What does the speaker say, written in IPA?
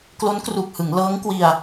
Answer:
k l o˦˥ n k r u˨˩ k̚ h ɯ˩˦ ŋ l ɤː˦˥ ŋ k w i˧ a̯

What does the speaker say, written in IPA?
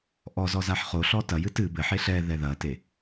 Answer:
ʔ ɔ z ɔ z a ħ χ o ɬ ɔ t ɐ j ɨ t ɨ b ɘ ħ e ɬ ɛ ð ɛ ð ɐ t e

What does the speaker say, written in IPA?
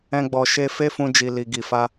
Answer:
ɛ̃˧ ɡ͡b ɔ˨ ʃ e˧ f e˦ f ũ˧ d͡ʒ i˨ l i˨ ɡ i˨ f a˧

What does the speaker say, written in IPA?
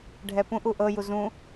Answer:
ɖʱ ɛ p ũ ʔ u ʔ ɤ j u z ũ

